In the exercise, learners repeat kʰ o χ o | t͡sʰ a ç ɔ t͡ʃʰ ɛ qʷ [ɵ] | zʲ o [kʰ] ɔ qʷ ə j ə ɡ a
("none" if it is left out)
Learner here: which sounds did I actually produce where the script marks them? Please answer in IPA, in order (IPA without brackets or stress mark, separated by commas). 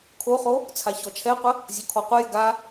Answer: ə, kʰ